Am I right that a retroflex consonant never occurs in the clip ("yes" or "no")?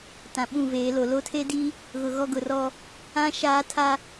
yes